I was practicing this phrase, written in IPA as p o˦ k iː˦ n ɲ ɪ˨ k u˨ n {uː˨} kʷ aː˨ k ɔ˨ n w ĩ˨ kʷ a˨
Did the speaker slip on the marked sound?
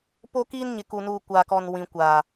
no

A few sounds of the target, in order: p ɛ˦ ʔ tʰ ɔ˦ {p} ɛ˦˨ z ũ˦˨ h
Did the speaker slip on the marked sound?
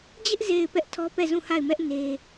no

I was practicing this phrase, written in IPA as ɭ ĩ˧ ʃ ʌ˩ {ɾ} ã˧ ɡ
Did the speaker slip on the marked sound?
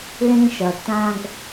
yes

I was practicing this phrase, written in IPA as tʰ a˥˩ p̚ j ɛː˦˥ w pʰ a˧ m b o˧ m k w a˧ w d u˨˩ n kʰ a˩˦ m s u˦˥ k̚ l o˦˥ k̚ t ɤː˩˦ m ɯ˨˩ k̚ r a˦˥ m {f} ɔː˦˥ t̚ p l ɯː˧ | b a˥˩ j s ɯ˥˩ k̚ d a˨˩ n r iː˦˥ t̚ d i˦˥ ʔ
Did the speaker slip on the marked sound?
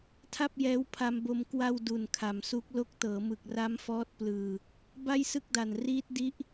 no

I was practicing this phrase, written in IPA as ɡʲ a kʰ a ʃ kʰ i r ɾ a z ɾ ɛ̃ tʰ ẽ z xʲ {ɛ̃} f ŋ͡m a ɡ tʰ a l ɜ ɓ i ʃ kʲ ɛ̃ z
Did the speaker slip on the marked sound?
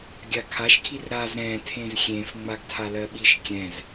yes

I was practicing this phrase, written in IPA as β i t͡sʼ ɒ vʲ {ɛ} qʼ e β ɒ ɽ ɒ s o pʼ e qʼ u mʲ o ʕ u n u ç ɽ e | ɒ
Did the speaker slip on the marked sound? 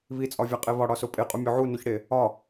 yes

